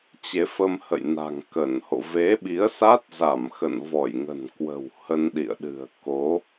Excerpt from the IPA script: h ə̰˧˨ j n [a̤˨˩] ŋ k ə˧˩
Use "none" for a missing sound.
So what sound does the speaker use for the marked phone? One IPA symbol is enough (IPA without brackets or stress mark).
a̤˨˩